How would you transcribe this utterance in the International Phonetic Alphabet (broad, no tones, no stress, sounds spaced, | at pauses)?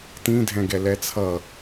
t ĩ dʱ ɛ̃ ɡ ɛ l ɛ t͡sʰ ʌ